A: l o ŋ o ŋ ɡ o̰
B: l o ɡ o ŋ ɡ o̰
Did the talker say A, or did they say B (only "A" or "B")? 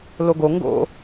B